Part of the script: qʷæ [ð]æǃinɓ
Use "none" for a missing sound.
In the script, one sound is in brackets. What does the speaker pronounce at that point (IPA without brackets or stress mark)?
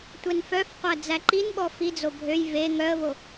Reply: d͡z